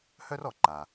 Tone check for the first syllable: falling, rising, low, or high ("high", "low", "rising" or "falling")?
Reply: high